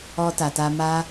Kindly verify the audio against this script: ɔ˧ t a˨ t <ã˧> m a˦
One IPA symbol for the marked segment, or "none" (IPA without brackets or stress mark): a˧